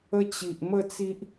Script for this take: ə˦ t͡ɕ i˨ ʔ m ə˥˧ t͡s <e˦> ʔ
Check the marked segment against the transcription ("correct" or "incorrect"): incorrect